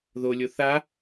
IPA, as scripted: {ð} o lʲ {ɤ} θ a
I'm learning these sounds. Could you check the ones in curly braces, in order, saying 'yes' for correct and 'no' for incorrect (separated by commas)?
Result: yes, no